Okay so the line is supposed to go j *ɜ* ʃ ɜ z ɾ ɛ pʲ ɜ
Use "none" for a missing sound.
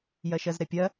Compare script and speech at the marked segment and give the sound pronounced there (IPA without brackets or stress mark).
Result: ɜ